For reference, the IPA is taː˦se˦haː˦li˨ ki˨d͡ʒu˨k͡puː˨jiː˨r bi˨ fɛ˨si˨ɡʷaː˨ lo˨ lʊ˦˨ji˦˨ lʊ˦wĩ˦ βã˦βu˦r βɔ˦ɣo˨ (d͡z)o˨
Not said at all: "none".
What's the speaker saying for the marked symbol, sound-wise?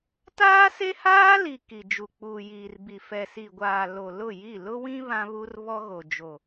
d͡ʒ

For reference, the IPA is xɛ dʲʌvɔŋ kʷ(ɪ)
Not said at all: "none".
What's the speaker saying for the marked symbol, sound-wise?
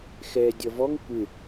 ɪ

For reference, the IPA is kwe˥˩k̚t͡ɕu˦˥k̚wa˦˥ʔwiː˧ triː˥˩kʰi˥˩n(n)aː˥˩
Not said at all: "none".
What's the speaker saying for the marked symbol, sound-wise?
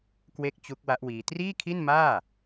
m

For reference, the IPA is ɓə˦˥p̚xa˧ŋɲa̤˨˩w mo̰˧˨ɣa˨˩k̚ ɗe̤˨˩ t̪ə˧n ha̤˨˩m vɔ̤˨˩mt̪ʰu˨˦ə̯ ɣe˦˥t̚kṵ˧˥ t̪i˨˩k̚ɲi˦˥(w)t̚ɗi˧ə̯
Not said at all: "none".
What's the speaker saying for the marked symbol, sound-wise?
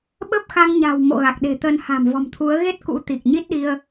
none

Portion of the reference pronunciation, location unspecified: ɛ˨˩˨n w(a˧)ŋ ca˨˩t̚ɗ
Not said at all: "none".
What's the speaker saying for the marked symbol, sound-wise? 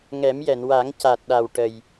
a˨˩˦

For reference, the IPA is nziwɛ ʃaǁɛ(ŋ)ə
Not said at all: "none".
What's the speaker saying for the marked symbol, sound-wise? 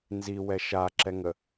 ŋ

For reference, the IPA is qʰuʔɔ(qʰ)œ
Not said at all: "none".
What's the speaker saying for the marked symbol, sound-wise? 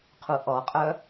qʼ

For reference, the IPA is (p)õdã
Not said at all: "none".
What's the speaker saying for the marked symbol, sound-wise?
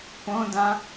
p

